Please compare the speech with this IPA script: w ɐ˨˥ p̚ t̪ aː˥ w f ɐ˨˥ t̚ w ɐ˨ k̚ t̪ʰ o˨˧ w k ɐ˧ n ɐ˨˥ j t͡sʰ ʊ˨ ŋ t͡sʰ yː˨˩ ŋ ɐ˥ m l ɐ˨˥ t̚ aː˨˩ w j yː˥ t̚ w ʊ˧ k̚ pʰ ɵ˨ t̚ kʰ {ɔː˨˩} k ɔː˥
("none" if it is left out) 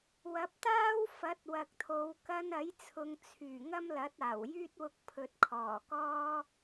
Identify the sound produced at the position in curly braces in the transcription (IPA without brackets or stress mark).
ɔː˨˩